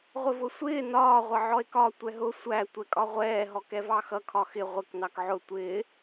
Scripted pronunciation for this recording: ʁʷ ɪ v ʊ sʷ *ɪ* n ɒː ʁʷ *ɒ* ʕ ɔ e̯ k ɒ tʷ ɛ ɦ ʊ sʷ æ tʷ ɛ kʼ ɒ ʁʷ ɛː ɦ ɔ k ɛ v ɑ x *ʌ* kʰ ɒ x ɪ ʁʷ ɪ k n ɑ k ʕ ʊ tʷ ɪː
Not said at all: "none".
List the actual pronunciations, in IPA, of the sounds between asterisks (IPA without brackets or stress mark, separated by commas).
ɪː, ʌ, ʌ